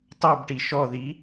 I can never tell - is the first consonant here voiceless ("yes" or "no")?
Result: yes